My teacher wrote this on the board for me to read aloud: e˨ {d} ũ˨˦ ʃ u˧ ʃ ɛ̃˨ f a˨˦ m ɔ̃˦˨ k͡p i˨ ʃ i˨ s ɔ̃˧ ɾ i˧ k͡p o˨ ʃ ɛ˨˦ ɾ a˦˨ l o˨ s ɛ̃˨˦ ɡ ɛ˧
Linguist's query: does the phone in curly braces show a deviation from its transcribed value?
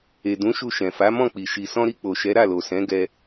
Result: no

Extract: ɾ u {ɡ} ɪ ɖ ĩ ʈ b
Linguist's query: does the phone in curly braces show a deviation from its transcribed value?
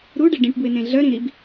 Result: yes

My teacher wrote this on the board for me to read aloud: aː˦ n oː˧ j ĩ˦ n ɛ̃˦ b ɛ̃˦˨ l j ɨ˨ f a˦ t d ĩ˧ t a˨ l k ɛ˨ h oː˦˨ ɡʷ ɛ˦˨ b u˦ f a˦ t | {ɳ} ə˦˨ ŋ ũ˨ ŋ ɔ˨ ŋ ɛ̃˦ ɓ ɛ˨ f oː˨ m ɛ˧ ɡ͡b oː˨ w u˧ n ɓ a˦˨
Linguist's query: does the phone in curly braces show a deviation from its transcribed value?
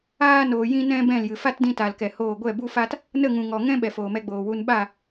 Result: yes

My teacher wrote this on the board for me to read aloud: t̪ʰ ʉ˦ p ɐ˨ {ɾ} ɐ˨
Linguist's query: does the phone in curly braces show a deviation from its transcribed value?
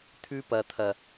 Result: yes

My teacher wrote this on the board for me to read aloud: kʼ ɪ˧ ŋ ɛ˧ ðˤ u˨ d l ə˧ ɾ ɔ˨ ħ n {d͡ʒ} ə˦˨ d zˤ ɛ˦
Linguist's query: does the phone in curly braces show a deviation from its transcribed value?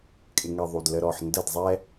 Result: yes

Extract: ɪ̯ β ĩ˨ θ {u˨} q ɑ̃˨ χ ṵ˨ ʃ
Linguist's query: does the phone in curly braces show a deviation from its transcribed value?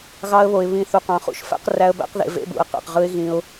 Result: no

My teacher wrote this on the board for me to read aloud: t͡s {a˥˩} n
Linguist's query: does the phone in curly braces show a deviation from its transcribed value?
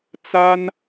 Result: yes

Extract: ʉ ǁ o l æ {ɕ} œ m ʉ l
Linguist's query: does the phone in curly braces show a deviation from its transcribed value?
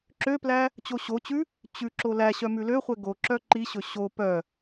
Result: no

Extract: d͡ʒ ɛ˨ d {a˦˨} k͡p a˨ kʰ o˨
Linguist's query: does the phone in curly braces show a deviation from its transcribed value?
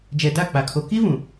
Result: no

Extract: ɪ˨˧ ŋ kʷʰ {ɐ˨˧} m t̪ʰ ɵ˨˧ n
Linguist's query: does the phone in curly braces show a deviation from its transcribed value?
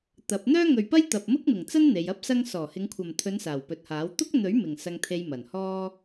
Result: yes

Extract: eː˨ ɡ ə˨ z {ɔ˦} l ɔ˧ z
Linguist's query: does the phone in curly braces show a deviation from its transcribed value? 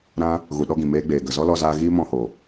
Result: no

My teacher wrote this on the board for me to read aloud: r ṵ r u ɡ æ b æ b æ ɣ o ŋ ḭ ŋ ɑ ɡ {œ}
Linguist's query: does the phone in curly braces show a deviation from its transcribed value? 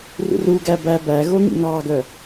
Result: no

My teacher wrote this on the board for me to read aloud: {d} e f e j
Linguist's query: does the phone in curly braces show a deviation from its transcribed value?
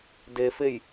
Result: no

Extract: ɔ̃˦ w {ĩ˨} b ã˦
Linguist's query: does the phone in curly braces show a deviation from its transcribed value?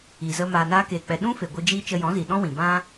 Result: no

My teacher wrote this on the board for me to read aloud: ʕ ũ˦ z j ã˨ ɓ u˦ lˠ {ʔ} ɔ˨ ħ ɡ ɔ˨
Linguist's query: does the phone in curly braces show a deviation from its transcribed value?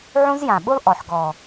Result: no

